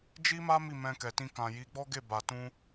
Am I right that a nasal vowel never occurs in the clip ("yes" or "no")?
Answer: no